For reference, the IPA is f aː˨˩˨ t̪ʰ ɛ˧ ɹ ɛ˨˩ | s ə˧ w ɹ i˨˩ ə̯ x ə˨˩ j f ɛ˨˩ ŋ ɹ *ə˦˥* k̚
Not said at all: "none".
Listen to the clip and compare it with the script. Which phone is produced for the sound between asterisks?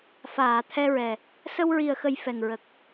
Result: ə˨˩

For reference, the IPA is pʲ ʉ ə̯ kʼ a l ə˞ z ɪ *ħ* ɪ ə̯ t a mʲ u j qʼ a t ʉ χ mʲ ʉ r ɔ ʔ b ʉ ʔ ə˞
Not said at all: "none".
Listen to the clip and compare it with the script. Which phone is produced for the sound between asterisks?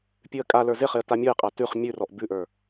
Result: χ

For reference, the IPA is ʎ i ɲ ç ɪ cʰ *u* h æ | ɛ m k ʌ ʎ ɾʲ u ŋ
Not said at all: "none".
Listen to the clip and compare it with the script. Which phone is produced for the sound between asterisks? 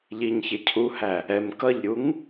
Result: u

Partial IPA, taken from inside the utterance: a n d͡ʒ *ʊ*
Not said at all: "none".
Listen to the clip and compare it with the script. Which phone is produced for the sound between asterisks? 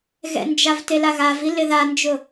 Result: ʊ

